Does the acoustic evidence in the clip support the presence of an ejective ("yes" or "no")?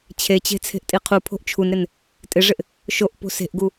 yes